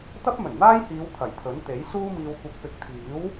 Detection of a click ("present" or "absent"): absent